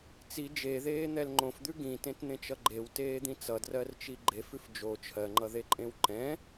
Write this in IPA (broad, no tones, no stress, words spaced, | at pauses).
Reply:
t͡si d͡ʒeðeːn̪ɛl ŋ͡ǃõfd̪ʉ ɡĩtẽtn̪ẽt͡ʃʌ ɡ͡ǃewteːd̪ĩ t͡sʌdrɜrt͡ʃi ɡ͡ǃefʉf d͡ʒo t͡ʃʰɜŋ͡ǃʌðeǃʼẽw ǃɛ̃